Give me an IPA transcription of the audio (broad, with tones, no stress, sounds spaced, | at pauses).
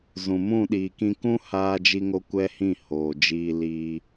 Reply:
z ũ˨ m ũ˦˨ ɗ iː˨ k ĩ˧ k ũ˦ h aː˧ d͡ʒ i˧ ŋ o˧ kʷ ɛ˦ h ĩ˦˨ h oː˨ d͡ʒ iː˧ l iː˧